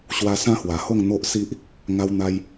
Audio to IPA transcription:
ɕ w a˦ s ã˦ h w a˨˩ h o˥˧ ŋ n̪ o˦ ʔ s i˦ ʔ | ŋ a˧ w n̪ a˧ j

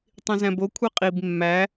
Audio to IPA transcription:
tˤ ĩ z æ̃ b o kʷʰ e qʼ i b mː æ

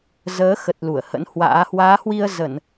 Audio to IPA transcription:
z əː˨˦ x ə˨˩ t̚ l u˧˩ ə̯ h ə̰˧˥ n h w a̰ː˧˥ h w aː˨˦ h w i˧ ə̯ z ə˧˩˨ n

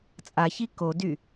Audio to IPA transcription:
t͡sʼ a ç i k o d y

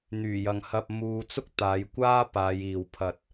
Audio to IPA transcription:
n̪ yː˨˩ j ɐ˨ ŋ h ɐ˧ p̚ m uː˧ t͡s ʊ˥ k̚ t̪ aː˨˧ j kʷ aː˥ p aː˨˧ j iː˨ w pʰ ɐ˨ t̚

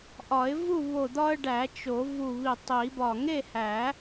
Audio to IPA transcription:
ʔ ɒ˨˩˦ ɪ̯ v u˥˨ β o˧˩ d̪ ɒ˦ ə̯ ɖ æ˨˩˦ t͡ʃ o˨˩˦ v u˧˩ β i˧˩ tˤ i˨˩˦ b ɒ˧˩ ŋ e˥˨ h æ˨˩˦

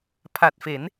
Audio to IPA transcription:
pʰ a˨˩ t̚ f e˩˦ n

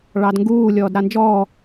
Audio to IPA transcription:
ɭ ɑ d ŋ ɡ uː lʲ ɔː d ɾ a n d͡ʒ ɔː

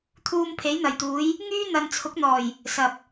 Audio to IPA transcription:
t̪ʰ uː˧ m pʰ e˨˥ j n̪ ɐ˨˩ j t̪ uː˨˥ j | ŋ yː˥ n̪ ɐ˨ n t͡sʰ ʊ˨˥ k̚ n̪ ɔː˨˩ j | s ɐ˨ p̚

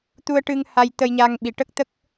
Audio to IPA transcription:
t̪ u˧ ə̯ ʈ ɨ˧ ŋ h a˧ j t̪ ə˧ j ɲ a˧ ŋ ɓ i˨˩ ʈ ə˦˥ k̚ t̪ ə˦˥ k̚

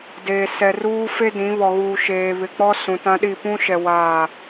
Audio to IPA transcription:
d eː˨ s ɛ˨ r uː˦ f e˦ d ĩ˨˦ β ɔ˨ ɣ uː˨ ʃ eː˨ β ɪ˨ k͡p ɔ˦ s ũ˨ t ã˦ ɗ i˦˨ p ũ˦ ʃ ɛ˨ w aː˦˨

